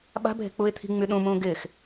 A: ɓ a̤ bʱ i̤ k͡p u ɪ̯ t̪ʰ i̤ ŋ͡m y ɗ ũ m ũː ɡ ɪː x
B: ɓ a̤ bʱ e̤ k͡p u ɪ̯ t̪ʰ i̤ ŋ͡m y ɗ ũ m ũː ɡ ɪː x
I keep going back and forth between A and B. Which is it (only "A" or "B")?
B